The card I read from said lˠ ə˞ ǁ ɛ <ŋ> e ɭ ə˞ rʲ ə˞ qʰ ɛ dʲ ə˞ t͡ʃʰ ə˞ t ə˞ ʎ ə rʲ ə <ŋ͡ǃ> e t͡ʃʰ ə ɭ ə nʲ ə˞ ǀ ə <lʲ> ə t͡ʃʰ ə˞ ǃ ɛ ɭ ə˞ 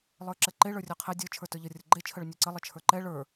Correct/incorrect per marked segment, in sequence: incorrect: ǃ, incorrect: ɡ͡ǃ, incorrect: lˠ

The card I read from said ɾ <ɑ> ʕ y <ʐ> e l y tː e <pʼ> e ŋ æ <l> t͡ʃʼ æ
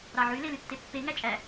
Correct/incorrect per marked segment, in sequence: correct, incorrect: l, incorrect: pː, incorrect: none

